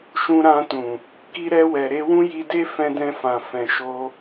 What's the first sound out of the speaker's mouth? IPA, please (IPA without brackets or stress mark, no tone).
ʃ